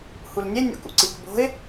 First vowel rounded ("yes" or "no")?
yes